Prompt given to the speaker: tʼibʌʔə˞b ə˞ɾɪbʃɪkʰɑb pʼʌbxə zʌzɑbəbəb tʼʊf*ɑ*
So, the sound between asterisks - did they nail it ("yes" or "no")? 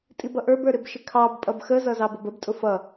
no